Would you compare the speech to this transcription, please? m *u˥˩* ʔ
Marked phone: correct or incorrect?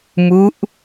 incorrect